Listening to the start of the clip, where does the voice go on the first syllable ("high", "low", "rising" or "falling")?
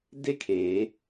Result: falling